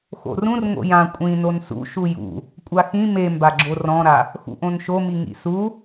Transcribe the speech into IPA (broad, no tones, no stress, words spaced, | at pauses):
xo̰rũr ŋo̰jã kʷʼĩ nonsṵ ʃujṵ | kʷʼaxĩ membaɡ͡ǁo rɔ̃ɾa | xṵʔõnʃomi ŋḭsu